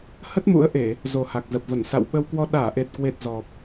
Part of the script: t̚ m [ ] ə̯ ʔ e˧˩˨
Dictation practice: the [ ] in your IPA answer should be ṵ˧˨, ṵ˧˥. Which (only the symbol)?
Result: ṵ˧˥